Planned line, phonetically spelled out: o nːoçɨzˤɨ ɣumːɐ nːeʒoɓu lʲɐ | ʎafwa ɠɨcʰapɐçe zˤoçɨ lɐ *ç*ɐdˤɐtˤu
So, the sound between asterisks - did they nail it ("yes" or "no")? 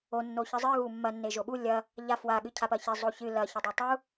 yes